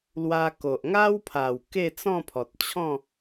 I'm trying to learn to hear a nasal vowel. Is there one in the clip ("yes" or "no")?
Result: yes